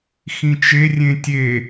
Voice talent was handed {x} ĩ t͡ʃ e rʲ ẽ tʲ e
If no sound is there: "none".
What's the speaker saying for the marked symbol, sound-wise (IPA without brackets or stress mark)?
x